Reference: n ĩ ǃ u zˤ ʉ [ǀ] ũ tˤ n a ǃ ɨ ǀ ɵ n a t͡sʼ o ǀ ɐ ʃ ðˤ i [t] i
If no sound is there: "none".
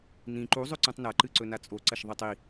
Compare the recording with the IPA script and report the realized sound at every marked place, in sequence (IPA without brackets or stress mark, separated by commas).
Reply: ǀ, tˤ